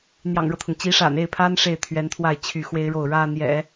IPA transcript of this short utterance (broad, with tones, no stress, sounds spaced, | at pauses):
n̪ j ɑ̰˨˩ ŋ ɻ ɤ˦ t̪ʰ ʊ˩ ŋ t͡ɕ i˧˥ ʂ a̰˨˩ n e˥˩ ɪ̯ pʰ a˥ n ʂ e˥˩ ɪ̯ t̪ʰ ɥ ɛ˧˥ n t̪ʰ w a˥˧ ɪ̯ t͡ɕʰ y˥˩ x w e˥ ɪ̯ ɻ o˥˩ ʊ̯ ɻ ä˥ n̪ j ɛ̰˨˩˦